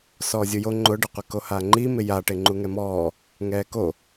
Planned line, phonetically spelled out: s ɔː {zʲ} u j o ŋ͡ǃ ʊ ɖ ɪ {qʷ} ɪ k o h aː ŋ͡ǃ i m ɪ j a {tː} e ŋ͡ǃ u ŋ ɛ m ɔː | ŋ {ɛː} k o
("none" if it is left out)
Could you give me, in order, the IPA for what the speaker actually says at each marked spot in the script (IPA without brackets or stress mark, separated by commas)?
zʲ, qʷ, ʈ, ɛː